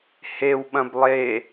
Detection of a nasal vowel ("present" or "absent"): present